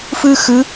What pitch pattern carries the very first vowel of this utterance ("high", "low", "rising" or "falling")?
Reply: high